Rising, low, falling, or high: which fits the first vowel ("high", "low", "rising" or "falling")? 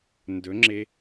rising